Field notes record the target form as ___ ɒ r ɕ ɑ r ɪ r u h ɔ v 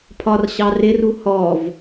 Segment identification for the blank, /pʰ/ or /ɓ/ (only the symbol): pʰ